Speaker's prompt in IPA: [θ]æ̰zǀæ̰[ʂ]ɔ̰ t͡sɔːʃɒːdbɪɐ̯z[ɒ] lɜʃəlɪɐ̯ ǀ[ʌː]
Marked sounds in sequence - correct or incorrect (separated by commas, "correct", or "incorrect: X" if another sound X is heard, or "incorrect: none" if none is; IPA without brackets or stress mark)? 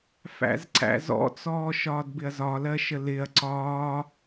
incorrect: f, incorrect: z, correct, incorrect: ɒː